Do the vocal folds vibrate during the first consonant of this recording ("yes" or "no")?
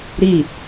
yes